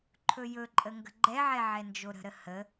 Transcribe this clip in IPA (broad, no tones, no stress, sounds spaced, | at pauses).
ǃʰ ɵ j ɵ ǃʼ ə ŋ ɡ ə̤ ɡ͡ǃ ɛ ʕ ɛ ʕ ɛ n d͡ʒ o ɾ ə̤ ɾ ə h ə